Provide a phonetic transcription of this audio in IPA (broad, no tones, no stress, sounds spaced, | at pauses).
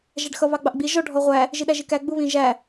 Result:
ʒ æ ɖ x ʌ β ɑ ɡ͡b ɑ ʔ ɡ͡b i ʒ ɔ ɖʱ ɔ ʁʷ æ | ʒ i ɗ æ ʒ i k æ ɡ͡b u β ĩ ʒ æ